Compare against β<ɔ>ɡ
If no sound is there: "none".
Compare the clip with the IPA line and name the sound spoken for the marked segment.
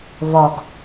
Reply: ɔ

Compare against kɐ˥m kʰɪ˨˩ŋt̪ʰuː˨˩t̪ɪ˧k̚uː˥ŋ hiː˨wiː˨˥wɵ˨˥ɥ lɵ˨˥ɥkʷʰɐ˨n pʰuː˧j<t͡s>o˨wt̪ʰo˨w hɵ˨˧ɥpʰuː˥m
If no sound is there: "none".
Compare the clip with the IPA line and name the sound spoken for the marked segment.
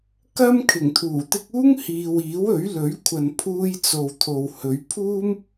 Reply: t͡s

